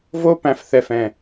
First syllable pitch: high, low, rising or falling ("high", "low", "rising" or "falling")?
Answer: high